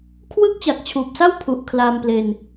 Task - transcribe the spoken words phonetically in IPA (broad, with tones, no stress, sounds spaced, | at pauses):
kʰ w ɯ˦˥ k̚ t͡ɕ a˨˩ k̚ t͡ɕʰ uː˨˩ p̚ s a˥˩ w pʰ u˨˩ ʔ kʰ l aː˧ m p l e˧ n